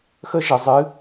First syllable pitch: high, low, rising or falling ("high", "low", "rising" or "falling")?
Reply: high